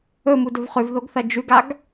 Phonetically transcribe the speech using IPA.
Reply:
ɵ m u d ɵ v χ ʉ v ð o ɡ θ ɐ d͡ʒ ʉ ɡ a ɡ

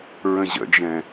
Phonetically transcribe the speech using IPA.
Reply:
ɹ ə̃ ʑ ə̰ d͡ʒ ɛ̃

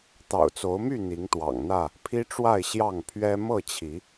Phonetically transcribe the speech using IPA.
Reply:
t̪ ɑ̰˨˩ ʊ̯ t͡s o˨˦ ʊ̯ m y˥˨ n̪ i˨˦ ŋ t̪ w ɑ̰˨˩ ŋ n̪ ä˥˨ | pʰ i˦ ʈ͡ʂ w a˥˨ ɪ̯ ɕ j ɑ˥˨ ŋ pʰ ɥ ɛ˦ m ɤ˥˨ t͡ɕʰ i˨˦

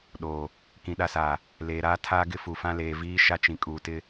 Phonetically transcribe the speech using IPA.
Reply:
ɗ oː˨ | k ĩ˨ ɗ a˨ s aː˨ | l eː˨ ɾ aː˦ tʰ aː˦ ɡ ɪ˦ f u˨ f ã˦ l eː˨ v iː˦ ʃ a˦ t͡ʃ ĩ˨ kʼ uː˨ t ɪ˦

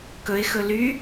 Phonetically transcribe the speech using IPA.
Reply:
k ɵ ɪ̯ x ɵ l y

